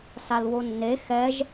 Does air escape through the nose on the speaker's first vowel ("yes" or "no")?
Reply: no